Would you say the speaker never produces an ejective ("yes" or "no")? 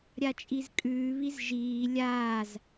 no